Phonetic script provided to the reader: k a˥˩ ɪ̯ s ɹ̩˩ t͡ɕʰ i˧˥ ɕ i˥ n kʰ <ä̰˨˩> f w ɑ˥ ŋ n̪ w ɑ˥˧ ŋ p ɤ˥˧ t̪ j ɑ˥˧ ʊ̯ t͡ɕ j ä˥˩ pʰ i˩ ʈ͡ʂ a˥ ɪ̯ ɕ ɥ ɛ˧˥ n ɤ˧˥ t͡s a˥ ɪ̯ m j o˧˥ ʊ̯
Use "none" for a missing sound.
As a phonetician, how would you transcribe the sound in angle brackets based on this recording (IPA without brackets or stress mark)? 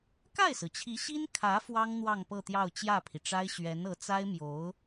ä˧˥